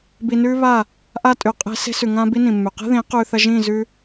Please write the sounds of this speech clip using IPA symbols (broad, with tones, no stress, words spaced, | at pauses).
bi˧nʉː˦ βa˦˨ | ʔa˦tʼʉ˨ qʼe̤˦ se̤˦ sʉ˨ ŋã˦ bi˦nĩ˨mːʉ˨ qe̤˦ðĩː˨˦ qʉː˧θɐ˦ ʒĩː˦˨zʉ˧